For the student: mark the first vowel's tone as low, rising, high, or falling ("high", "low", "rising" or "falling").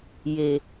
low